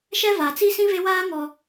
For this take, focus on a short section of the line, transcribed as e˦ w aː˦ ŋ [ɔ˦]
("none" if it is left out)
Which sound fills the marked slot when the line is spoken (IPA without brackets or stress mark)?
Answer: ɔ˨